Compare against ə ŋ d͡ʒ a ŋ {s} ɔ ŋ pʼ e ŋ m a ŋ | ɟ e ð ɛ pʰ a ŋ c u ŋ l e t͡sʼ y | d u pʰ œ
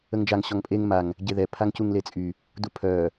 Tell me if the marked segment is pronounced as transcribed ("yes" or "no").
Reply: no